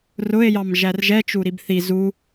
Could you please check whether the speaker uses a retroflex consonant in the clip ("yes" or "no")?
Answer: no